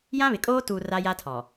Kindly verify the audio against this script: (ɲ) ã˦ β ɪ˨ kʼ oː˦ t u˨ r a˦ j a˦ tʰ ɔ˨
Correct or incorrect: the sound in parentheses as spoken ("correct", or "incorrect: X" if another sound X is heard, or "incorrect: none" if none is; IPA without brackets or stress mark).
incorrect: j